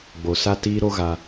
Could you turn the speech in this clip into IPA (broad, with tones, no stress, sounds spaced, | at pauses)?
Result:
ɡ͡b o˨ s a˦ t iː˦ ɾ o˦ ɣ a˧